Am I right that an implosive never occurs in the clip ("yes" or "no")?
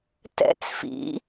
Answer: yes